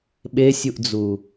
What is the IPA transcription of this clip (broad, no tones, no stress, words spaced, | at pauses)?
ɓesʲuʔd͡zu